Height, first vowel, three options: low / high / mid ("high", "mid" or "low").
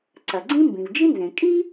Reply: low